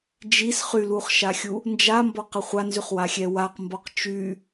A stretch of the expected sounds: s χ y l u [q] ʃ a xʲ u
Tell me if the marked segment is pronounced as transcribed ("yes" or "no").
no